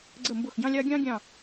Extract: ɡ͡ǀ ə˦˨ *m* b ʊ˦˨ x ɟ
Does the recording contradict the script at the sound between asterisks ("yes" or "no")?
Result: no